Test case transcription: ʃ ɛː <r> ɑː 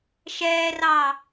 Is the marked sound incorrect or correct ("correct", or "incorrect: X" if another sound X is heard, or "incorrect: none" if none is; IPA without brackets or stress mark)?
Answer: correct